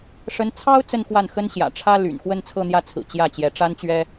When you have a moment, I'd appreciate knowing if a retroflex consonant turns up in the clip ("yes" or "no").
yes